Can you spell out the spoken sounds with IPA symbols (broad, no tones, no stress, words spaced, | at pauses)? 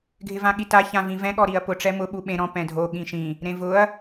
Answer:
ɡʱɪvãɠita çãvĩvɛ̃ ɠɔɾiɐ̯pʊ ʈ͡ʂɛmʊ ɓuɓẽ ɾɔ̃ pɛ̃dʱo ɠĩʃĩ | ɾẽvʊɐ̯